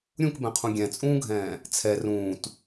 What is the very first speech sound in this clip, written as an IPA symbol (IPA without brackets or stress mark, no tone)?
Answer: ɾʲ